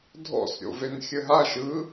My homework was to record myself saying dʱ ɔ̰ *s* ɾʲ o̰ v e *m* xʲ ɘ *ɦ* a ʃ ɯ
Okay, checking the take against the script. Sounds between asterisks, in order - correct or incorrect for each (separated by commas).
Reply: correct, incorrect, correct